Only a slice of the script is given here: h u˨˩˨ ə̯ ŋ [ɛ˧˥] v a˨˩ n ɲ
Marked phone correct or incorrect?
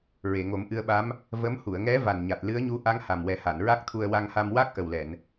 correct